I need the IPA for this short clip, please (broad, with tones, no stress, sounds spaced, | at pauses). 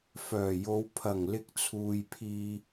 f œː˨˩ j o˨˧ w pʰ ɐ˨˩ ŋ l ɪ˧ k̚ t͡sʰ uː˨ j pʰ iː˧